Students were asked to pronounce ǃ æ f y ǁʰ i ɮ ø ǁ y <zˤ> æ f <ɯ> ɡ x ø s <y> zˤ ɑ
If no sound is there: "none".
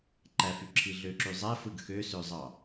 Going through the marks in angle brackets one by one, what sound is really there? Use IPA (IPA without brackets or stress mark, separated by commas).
zˤ, ɯ, ø